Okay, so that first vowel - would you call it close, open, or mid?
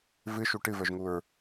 close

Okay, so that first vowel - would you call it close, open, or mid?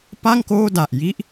open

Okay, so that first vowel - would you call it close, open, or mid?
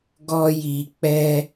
mid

